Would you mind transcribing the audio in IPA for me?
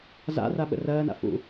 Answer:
za̰ra ɓə̰rɜːna̰ fṵ

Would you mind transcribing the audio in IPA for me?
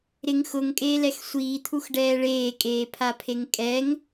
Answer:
ɾɪŋ xʊŋkʼeːlɛx sʷiːt̪ʰuxɖɛː ɭeːkʼeːpʰapʰeŋ kʼɛŋ

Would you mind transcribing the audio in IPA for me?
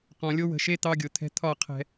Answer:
qɔ̃˨lʲo˦ wə̤˧ʃe˦ t̪ɑ˦ɡʲʊ˨t̪ʰɛ̤˦ t̪ʰɒ˦˨qʰɛ̤˧

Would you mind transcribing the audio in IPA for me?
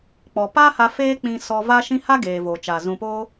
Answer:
k͡pɔ˨paː˦ha˧ feː˦k͡pĩ˧ sɔ˧va˦ʃĩ˦ ha˦ɡeː˨ voː˨t͡ʃa˨ zũ˨poː˧

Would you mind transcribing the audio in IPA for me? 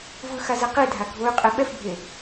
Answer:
vɯxaze qidʱa ɡʱoy̯qʼe ɓɛfbʱe

